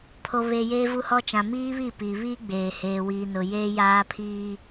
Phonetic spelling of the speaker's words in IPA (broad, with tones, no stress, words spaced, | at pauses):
pʰo˨βeː˨ jeː˨vu˨hɔ˨ t͡ʃã˨miː˦βi˦˨piː˨ βiː˦ɡ͡beː˨ heː˨wiː˨nʊ˨ jeː˦jaː˦ pʰiː˦